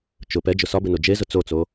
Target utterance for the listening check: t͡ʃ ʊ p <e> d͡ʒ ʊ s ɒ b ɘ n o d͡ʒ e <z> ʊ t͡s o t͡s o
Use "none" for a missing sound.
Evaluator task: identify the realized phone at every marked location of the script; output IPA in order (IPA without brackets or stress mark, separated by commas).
ɛ, z